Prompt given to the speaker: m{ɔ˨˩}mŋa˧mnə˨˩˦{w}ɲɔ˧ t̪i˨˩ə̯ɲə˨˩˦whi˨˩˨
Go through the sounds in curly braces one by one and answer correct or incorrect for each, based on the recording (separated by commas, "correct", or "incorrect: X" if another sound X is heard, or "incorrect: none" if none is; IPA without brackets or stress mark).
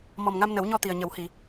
correct, correct